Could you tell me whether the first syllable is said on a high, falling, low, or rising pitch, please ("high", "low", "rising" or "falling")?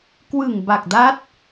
low